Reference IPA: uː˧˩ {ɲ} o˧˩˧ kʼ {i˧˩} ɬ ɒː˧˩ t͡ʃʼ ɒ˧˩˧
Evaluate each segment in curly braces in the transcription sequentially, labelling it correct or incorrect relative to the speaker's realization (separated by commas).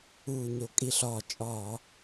correct, correct